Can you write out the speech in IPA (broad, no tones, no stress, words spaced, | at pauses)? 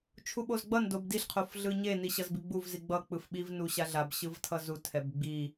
t͡ʃʰuɓozɡ͡bʌn dobdiɬ qʰofɮɯɲe niɕʌzbiɡ͡buv ziɡ͡bʌ k͡pɯfɓiv nuɕaɮab ɕɯvtʰʌzu tʰɛbɡ͡bi